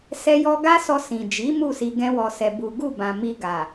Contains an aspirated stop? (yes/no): no